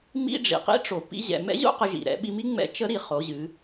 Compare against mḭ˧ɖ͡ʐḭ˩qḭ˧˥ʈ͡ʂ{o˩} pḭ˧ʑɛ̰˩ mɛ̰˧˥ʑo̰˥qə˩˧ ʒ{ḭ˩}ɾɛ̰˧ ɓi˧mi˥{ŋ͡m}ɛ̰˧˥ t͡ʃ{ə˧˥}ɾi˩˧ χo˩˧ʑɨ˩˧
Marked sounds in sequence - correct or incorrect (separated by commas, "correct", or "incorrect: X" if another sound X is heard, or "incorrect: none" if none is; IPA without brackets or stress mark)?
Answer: correct, correct, correct, correct